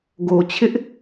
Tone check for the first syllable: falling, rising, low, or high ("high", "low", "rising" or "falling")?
low